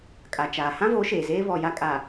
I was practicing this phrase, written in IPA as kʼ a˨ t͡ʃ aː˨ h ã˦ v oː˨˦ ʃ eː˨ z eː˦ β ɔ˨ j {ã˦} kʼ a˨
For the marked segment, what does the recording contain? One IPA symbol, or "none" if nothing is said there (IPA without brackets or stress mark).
a˦